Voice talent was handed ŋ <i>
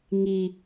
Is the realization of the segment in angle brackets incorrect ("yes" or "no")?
no